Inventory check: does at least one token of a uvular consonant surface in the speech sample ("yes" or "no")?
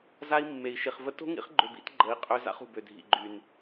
yes